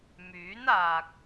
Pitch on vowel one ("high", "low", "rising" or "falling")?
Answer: rising